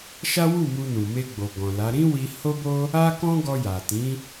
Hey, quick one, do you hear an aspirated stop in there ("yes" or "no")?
no